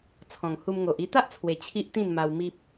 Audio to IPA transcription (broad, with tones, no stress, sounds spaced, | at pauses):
t͡sʰ ɔ̃˨˩ ŋ h u˧ m ŋ o˨ ʔ i˧ t̪ a˦ ʔ t͡sʰ w e˨˩ t͡ɕʰ i˦ ʔ t̪ ĩ˥˧ n m a˧ w m i˦ p̚